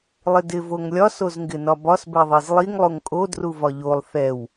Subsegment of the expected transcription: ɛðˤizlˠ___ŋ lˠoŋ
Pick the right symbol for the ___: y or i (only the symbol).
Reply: i